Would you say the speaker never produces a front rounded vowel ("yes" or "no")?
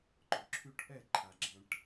no